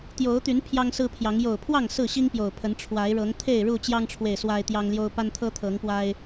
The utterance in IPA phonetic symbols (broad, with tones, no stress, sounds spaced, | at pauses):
t̪ j o˨˦ ʊ̯ t̪ y˨˦ n pʰ j ɑ˦ ŋ s ɹ̩˦ pʰ j ɑ˨˦ ŋ j o˨˩ ʊ̯ pʰ w ɑ˥˨ ŋ s ɹ̩˥˨ ɕ i˦ ŋ p j o˨˩ ʊ̯ pʰ ə˨˦ n ʈ͡ʂʰ w a˨˦ ɪ̯ ɻ ɤ˨˦ ŋ t̪ʰ e˥˨ ɪ̯ ɻ u˥˨ t͡ɕ j ɑ˦ ŋ ʈ͡ʂʰ w e˨ ɪ̯ s w a˦ ɪ̯ t̪ j ɑ˦ ŋ l j o˦ ʊ̯ p a˦ n t̪ʰ ɤ˦ t̪ʰ ɤ˨˦ ŋ p w a˦ ɪ̯